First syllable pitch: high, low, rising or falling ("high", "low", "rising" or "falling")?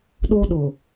high